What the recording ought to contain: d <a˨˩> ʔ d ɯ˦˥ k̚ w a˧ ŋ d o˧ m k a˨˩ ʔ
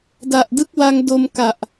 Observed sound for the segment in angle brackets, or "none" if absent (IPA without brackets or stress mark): a˨˩